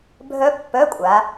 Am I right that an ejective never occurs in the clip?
no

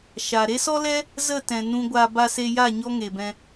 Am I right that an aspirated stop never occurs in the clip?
yes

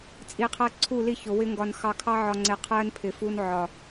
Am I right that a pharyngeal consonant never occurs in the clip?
no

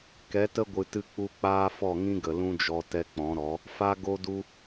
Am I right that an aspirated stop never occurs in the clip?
yes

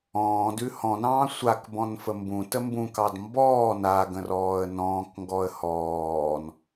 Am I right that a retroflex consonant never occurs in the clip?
yes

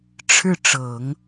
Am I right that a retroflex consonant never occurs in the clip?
no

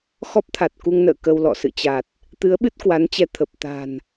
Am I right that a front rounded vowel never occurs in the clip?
yes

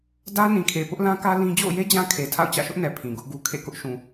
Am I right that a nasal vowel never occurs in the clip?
no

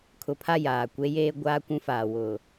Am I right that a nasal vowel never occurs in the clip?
no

